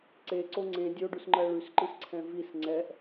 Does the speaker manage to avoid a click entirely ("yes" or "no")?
no